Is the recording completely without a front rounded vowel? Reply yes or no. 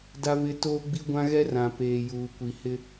yes